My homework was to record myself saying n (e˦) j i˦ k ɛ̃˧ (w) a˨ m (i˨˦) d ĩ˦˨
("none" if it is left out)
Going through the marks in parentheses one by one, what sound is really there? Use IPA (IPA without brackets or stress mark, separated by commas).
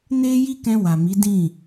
e˦, w, i˨˦